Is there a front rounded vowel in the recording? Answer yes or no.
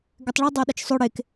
yes